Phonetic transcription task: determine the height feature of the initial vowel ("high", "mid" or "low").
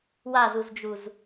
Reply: low